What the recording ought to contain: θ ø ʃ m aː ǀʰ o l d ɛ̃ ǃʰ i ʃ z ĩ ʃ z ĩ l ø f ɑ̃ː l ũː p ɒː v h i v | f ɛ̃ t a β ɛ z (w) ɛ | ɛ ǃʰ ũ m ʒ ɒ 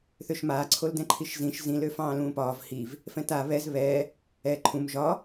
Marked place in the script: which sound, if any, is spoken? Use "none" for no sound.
β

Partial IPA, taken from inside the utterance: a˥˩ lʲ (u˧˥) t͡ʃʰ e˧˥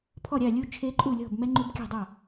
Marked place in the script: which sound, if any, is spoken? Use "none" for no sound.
u˧˥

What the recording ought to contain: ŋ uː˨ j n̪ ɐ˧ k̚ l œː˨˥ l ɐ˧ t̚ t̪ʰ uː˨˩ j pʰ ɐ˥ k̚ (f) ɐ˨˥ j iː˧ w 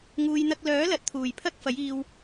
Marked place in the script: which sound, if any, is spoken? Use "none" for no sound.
f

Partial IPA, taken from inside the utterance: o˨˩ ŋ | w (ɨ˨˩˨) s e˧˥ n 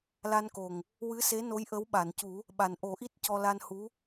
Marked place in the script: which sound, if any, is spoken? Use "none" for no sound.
ɨ˧˥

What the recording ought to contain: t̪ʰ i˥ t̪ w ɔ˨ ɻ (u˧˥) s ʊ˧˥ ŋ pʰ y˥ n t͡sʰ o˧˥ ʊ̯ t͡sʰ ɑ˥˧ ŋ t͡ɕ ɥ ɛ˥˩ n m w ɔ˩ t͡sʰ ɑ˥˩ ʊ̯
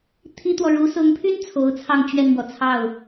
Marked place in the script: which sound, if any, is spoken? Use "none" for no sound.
u˧˥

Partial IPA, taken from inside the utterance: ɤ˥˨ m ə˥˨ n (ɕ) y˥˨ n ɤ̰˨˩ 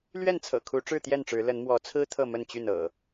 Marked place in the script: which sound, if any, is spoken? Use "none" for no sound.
t͡ɕ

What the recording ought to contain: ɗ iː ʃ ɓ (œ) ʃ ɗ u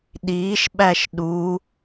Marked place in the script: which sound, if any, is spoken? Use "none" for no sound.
æ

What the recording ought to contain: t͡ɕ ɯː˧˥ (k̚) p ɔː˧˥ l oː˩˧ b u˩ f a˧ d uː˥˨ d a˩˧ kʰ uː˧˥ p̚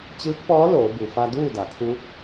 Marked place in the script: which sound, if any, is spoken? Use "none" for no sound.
k̚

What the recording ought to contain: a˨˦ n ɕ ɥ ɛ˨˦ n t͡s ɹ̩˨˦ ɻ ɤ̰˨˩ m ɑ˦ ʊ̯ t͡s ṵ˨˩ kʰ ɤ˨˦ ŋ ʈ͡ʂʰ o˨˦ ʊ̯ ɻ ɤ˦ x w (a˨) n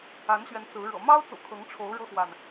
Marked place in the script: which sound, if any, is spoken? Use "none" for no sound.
a˨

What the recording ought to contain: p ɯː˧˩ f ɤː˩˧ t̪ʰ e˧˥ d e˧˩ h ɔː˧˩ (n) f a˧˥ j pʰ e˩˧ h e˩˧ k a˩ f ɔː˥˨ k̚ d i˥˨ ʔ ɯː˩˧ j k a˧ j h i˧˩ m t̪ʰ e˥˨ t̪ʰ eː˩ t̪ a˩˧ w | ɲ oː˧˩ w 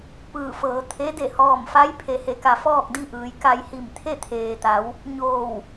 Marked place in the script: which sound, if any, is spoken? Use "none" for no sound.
m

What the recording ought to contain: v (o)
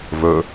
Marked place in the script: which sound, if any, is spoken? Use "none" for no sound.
ɵ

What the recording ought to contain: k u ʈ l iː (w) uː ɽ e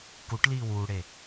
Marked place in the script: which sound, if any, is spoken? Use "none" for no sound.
w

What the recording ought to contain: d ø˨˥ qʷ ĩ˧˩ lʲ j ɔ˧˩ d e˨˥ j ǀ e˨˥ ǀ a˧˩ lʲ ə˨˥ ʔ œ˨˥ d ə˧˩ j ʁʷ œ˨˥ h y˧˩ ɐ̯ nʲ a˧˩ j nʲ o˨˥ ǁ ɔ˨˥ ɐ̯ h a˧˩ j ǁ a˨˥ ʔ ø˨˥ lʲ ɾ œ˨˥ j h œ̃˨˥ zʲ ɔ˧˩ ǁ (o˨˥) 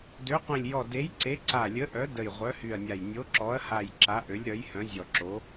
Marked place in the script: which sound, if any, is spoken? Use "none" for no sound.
o˨˥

